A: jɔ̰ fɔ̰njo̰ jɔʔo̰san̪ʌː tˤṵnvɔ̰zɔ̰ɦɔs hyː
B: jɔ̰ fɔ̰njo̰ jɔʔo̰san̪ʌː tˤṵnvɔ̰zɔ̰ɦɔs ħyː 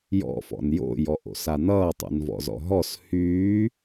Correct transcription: A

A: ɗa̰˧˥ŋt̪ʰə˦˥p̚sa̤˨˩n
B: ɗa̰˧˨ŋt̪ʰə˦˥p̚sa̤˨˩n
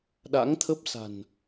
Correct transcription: A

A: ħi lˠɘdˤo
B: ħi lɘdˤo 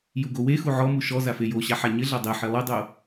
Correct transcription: A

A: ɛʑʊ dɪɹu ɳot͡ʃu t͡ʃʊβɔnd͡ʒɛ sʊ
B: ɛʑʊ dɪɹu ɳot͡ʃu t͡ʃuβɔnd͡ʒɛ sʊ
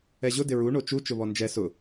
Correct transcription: A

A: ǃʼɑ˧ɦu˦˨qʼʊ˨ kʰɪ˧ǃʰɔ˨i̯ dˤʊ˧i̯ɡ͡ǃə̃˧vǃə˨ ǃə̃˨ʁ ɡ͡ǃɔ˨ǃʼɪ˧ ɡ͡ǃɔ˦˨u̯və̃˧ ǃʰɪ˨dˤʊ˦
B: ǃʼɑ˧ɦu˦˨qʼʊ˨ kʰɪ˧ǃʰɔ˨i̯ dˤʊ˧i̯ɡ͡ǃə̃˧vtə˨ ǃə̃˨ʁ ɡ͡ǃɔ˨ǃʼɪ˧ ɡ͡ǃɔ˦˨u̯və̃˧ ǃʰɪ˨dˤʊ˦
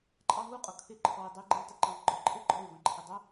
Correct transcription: B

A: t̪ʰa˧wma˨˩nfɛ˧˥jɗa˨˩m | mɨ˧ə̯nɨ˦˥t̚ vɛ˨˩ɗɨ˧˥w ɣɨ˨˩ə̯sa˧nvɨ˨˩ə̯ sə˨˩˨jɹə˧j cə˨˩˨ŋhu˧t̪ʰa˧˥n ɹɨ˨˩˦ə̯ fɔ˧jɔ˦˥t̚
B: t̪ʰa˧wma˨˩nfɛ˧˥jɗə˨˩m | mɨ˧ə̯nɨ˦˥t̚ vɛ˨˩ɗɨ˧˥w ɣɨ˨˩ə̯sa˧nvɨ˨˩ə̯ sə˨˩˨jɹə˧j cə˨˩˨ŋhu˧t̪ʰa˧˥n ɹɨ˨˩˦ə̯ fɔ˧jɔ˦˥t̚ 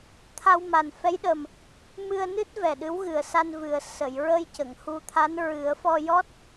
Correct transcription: B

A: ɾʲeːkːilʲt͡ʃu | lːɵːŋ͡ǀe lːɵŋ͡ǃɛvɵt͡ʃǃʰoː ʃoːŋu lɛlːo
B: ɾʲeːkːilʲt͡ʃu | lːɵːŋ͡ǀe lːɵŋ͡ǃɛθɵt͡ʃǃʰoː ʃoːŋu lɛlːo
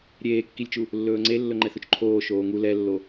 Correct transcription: B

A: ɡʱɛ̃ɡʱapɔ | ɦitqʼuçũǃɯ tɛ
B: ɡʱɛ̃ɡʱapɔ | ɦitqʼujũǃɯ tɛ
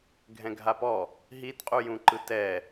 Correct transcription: B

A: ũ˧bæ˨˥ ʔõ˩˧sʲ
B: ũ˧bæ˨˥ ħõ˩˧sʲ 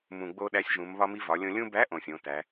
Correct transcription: A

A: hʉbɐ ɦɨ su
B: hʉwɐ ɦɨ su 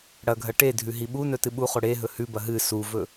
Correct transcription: A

